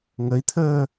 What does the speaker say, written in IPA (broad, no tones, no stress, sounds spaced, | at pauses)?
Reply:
ŋ ə i̯ t̪ʰ əː